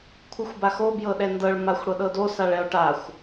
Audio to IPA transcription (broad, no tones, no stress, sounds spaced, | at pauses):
kʷʰ ɨ xʷ b a x o b j ɤ ɗ ɛ n d ɤ ɭ m a xʷ ɽ ɤ ɗ ɤ d o s a ɭ ɛ o̯ ʈ a xʷ